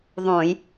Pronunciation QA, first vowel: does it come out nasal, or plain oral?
nasal